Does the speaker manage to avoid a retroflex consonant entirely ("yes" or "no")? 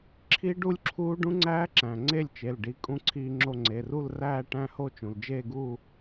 no